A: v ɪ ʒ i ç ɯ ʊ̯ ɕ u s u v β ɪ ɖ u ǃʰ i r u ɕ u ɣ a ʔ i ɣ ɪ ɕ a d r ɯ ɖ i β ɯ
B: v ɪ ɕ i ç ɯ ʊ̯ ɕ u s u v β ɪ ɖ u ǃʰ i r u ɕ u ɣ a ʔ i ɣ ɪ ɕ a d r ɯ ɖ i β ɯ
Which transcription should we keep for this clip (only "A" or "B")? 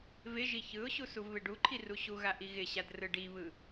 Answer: A